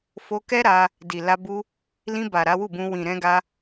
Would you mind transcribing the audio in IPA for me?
fo˧kɛ˦ ɾa˧ | di˨la˧ bu˧ | lĩ˧ba˨ ɾa˨˦wu˦˨bũ˧ wĩ˨ɾɛ̃˧ɡa˧

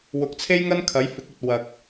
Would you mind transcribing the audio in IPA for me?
wʊ˨˥k̚t͡sʰe˥jŋɐ˥n kʰɐ˨˥jfɪ˨˥k̚ ɵ˧t̚ wɐ˨k̚

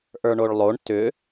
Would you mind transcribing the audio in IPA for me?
ʔə˞ɳoɭlˠoɳ tʏ

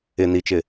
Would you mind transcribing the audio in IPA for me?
ɪ nit͡ʃɪ

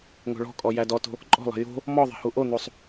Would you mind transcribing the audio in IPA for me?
ŋo̤ɭɔ̤kʼɔ jædɔto̤ | ǃʼɔ̤lˠɛ̤ jo̤ | mɔðˤɛ̤ huʔon̪usˤ

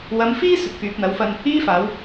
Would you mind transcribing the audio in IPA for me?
wɐ˨˥mfiː˥ sɵ˨t̚fyː˨p̚n̪ɐ˨˧wfɐ˧n | iː˥faː˨˧w

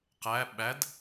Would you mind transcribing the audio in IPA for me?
qæ ɓæd

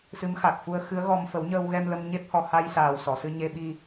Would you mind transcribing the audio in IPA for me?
sɨ˧˥mxa˨˩k̚ fu˧ə̯xɨ˧˥ə̯ɣɔ˧m fə˨˩˦wɲəː˧wɣɛ˧m lə˧mɲe˦˥p̚hɔ˨˩ha˧j saː˨˩wsɔ˨˩˨sɨ˧ ɲe˧ɓi˧

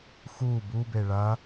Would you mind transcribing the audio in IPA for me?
xu bube ɭɐ

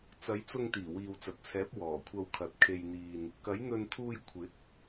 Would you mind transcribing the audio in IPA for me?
t͡sɐ˨˧jt͡sʊ˧ŋ t̪iː˨˩wiː˨wt͡sɐ˨t̚t͡sʰɛː˨˥p̚ wɔː˨˩kʷʰɐ˧wkʰɐ˨t̚ kʰe˧jn̪iː˧n | kɐ˨˥jn̪ɵ˧nt̪ʰuː˧j kʷʰɪ˨˥k̚

